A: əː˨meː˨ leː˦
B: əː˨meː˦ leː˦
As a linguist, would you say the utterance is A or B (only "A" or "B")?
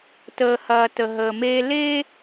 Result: B